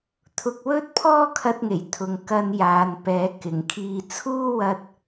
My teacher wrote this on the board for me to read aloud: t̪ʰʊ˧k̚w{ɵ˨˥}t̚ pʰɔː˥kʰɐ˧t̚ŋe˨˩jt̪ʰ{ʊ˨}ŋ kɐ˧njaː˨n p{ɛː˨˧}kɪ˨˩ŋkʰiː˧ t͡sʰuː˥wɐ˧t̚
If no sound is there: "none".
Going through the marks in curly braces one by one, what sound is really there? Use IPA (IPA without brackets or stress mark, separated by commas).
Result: ɵ˥, ʊ˨, ɛː˨˧